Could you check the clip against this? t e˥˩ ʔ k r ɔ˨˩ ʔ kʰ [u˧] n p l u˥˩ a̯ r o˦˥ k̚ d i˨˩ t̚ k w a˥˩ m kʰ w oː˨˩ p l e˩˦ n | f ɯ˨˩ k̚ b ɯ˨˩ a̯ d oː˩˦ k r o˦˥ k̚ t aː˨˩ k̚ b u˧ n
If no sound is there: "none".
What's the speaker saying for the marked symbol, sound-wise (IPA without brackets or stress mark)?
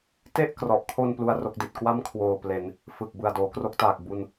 o˧